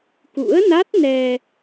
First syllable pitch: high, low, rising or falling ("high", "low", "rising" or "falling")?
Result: rising